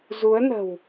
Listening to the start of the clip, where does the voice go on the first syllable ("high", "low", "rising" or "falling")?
rising